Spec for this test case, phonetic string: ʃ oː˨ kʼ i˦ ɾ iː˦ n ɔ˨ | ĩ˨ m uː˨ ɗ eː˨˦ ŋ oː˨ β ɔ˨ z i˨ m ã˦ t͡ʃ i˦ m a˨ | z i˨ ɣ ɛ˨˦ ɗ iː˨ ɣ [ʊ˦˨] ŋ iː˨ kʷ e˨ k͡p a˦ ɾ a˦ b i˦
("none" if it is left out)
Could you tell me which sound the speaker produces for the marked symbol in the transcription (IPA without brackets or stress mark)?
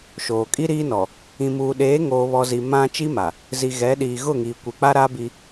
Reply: ʊ˦˨